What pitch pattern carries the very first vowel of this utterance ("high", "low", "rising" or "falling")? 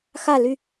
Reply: falling